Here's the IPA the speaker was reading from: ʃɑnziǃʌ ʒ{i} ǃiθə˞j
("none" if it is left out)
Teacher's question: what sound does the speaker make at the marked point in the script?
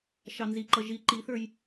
i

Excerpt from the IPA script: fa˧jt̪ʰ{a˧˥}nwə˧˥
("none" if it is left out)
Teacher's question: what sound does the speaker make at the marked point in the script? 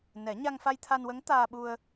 a˧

